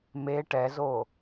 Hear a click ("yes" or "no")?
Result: no